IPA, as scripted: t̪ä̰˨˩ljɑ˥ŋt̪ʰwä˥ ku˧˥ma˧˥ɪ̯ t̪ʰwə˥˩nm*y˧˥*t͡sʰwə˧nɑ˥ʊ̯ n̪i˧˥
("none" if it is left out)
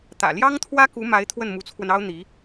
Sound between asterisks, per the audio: u˧˥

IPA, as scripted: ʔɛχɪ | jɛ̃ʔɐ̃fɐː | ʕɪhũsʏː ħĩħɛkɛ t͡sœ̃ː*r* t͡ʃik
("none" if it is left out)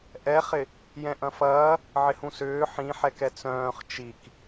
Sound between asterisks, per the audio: χ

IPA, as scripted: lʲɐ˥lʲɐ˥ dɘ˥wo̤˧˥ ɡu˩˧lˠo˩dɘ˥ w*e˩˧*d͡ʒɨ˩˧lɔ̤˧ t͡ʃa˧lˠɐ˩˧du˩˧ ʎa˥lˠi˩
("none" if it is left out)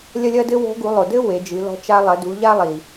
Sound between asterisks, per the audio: e˩˧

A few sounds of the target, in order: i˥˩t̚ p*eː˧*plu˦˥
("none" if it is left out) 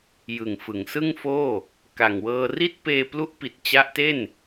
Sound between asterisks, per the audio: eː˧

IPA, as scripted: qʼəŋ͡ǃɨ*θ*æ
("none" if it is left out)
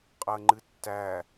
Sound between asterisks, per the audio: tː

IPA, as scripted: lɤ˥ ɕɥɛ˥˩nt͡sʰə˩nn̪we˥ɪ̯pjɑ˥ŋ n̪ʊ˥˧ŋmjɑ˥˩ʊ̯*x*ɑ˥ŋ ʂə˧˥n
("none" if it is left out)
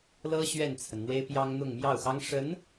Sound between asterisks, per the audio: x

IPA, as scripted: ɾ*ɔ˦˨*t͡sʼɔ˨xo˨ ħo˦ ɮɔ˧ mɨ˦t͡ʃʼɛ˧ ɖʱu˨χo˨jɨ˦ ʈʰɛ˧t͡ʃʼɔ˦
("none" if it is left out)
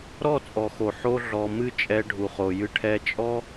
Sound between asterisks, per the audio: ɔ˦˨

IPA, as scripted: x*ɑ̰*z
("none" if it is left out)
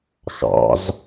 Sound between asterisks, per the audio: ɑ̰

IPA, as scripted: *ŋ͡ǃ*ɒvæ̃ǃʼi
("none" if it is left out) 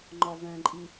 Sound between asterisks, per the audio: ŋ͡ǃ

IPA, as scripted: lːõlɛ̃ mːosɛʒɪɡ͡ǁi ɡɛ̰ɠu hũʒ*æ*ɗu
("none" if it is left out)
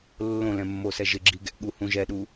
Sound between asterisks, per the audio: ɛ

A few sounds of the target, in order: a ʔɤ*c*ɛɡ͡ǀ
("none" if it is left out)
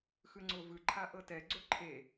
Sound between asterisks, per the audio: t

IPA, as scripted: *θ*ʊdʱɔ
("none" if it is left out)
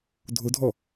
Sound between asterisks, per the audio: dʱ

